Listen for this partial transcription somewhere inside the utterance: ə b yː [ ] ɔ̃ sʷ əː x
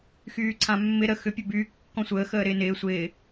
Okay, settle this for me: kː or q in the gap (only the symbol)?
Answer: kː